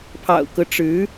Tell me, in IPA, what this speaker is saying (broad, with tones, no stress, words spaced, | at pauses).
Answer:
pʰɑ̰˨˩ʊ̯kɤ˦ʈ͡ʂɻ̩˧˥